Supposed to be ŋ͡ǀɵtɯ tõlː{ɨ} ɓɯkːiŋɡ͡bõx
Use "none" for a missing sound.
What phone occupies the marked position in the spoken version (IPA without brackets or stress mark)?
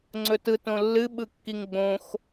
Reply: ɨ